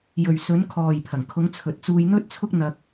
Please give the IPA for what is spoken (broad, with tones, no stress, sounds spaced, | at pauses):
j ɵ˨ ɥ s ɵ˨˧ n kʰ ɔː˨ j pʰ ɐ˨˩ ŋ kʰ ʊ˨˧ ŋ t͡sʰ ɵ˨ t̚ t͡s uː˧ j n̪ ɵ˥ t̚ t͡sʰ ʊ˥ k̚ n̪ ɐ˧ k̚